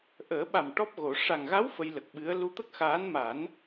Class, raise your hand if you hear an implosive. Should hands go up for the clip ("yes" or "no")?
yes